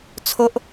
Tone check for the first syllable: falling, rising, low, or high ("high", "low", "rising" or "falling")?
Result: high